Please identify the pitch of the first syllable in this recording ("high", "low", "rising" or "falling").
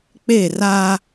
falling